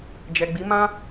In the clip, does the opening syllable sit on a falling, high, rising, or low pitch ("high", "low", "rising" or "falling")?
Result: low